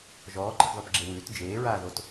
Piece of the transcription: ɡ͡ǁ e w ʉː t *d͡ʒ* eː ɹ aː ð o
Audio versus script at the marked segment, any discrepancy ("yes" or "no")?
no